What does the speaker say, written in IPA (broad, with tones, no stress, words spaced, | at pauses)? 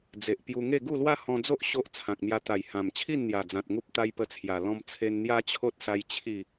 d͡ze˨ʔ pju˧ŋe˥˧ ɡu˥˧lwa˦hɔ̃˧d͡zo˦ʔ ɕo˦ʔ t͡sʰã˨k̚n̪ja˧ t̪a˨˩j hã˨˩mt͡ɕʰi˥˧nn̪ja˨˩d͡zã˨t̚ ŋu˦p̚t̪a˦jpə˧t͡sʰja˨˩ lɔ̃˦mt͡sʰe˦n n̪ja˦t͡ɕʰo˦t̚sa˧j t͡ɕʰi˥˧